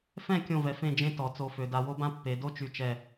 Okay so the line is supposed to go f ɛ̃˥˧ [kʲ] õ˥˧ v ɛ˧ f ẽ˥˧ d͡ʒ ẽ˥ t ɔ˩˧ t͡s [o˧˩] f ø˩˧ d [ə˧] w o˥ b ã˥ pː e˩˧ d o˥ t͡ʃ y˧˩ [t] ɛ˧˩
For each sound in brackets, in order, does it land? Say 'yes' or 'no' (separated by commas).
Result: yes, no, no, no